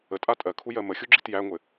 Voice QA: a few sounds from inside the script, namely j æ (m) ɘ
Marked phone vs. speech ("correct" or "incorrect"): incorrect